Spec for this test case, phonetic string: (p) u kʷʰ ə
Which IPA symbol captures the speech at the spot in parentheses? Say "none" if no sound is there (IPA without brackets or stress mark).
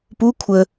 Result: p